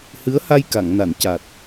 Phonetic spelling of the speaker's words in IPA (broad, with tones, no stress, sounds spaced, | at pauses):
h ɨ˧˥ ə̯ h a˧ j k a˨˩˨ ŋ n a˨˩˨ n c a˨˩ t̚